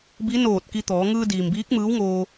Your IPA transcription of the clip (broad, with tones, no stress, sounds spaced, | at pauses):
b i˧˥ n oː˧˩ t̚ k i˧ t̪ ɔː˩˧ ŋ ɯː˧ d iː˩ m b iː˧˥ k̚ m ɯː˧˥ w ŋ oː˧